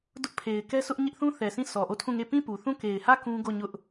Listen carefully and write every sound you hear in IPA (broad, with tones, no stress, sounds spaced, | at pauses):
d ʊ˦ ʔ pʰ e˨ ɪ̯ k ɛ˦ sʰ ʊ˦ ʔ ɲ ɪ˦ ʔ θ ũ˦ θ ɛ˨ sʰ ĩ˦˨ s ɔ˨ ʔ o˦˨ tʰ ũ˦˨ ŋ e˦˨ p ĩ˦˨ p u˨ θ ũ˦˨ k e˨ ɪ̯ h ä˦˨ k ũ˦ ɡ o˦˨ ɲ ʊ˦ ʔ